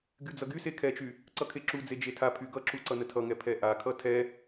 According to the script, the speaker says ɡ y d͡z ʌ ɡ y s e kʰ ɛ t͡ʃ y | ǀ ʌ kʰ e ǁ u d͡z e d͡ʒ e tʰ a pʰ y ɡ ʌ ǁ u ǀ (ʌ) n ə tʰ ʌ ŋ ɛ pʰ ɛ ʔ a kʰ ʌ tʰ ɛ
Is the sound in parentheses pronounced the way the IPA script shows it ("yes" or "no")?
yes